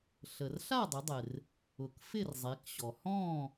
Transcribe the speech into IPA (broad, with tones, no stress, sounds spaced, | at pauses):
ɬ ə˩ r ɬ a˥˨ dˤ ɪ˩˧ dˤ ɪ˩ r | ʊ˩ k f ɪ˥˨ r zˤ e˩˧ k ɕ ɔ˩ h ɔ̃˥˨